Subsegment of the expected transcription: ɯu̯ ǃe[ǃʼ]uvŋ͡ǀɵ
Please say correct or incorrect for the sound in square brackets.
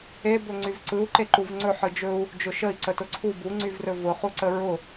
incorrect